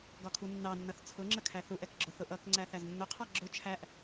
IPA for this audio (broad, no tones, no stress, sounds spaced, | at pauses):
ɡ ɒ kʰ u nː ɑ nː ʌ θ t͡sʰ ʊ ŋ͡ǁ ə kʰ æ θ u ʔ ɛ k ɡ͡ǁ ʊ θ ʊ ʔ ʌ k ŋ͡ǀ æ θ æ z nː ʊ qʰ ɑ ɡ͡ǁ ʊ t͡ʃʰ æ ʔ